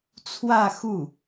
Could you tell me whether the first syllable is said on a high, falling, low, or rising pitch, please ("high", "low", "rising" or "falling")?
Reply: falling